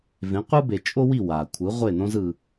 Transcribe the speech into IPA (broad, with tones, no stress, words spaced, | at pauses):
vẽ˩˥qʷɯ˥be˩ t͡ʃʼo˥wi˥˩ wa˩kʷʰɯ˩˥ ʁʷe˥˩nõ˥z ɯ˩